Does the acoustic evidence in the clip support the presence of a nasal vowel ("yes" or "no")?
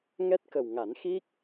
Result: no